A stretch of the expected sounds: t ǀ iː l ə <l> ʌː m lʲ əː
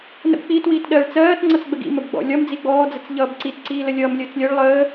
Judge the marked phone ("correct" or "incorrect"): incorrect